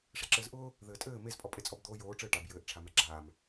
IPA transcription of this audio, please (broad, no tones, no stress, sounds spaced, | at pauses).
ʂ ɛ ǁ ɘː z ʔ ʊː | ð ɘː tʼ ɘː m e z pʼ ɔ pʼ e t͡sʼ ɔ b d̪ oː j oː ʈ͡ʂ ɘː ʈ a b j ɘː ʔ ʈ͡ʂʰ a m ɛ ɡ͡ǁ aː m